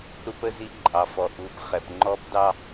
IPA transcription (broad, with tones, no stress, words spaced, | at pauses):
ɾu˦pə˦zi˦ ǃʼɑ˨fɔ˨ ʔu˨pχɛ˨pŋ͡ǃɔ˦pdɑ˦